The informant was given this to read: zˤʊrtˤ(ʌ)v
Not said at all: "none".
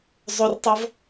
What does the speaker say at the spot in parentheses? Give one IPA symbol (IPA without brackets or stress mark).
ʌ